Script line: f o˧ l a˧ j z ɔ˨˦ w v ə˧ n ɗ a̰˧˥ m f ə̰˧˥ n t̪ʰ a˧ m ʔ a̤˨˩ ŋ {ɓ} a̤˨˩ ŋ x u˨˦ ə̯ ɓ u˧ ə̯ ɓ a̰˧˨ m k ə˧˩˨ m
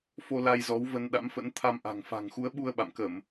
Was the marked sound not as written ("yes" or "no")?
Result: yes